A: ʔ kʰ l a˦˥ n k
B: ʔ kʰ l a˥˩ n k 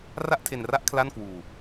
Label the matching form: B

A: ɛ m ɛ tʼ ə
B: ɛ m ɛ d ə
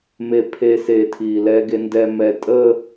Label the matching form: A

